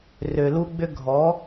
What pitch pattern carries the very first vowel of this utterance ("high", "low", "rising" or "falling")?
low